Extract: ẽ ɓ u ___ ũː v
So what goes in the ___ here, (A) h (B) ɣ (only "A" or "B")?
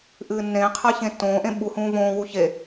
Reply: A